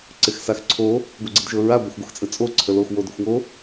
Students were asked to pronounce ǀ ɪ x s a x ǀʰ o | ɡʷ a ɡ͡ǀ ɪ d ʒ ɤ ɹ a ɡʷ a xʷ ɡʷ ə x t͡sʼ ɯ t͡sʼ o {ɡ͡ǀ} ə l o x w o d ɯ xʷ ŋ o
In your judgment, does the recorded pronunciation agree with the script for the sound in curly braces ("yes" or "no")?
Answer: no